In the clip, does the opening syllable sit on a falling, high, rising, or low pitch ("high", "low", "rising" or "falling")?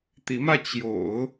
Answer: rising